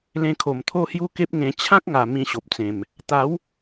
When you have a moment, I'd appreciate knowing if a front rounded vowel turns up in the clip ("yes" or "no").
no